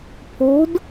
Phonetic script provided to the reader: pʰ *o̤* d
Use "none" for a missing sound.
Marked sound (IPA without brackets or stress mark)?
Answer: o̤